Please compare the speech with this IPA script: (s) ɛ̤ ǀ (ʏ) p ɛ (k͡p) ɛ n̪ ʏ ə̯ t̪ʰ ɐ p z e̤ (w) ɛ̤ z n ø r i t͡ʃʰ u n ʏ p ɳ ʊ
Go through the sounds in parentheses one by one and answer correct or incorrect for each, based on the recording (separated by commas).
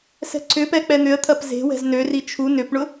correct, correct, correct, correct